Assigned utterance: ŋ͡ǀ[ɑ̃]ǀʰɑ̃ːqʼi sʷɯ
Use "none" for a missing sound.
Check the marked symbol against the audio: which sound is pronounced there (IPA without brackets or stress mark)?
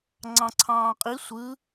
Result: ɑ̃